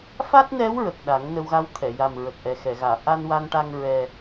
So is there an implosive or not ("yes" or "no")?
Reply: yes